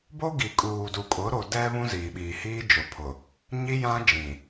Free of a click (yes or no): yes